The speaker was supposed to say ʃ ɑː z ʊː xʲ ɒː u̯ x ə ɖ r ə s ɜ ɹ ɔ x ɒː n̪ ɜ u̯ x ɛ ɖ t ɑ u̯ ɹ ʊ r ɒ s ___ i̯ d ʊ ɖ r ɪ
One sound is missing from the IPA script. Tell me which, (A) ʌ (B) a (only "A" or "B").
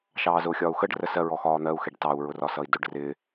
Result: A